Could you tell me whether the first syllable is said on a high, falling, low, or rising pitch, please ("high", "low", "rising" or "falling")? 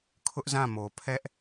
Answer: high